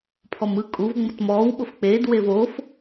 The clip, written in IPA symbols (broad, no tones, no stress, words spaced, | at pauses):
pʰɔmɯ kʼuv ŋ͡mɤtmɔːw ɓofk͡peːd wevoːf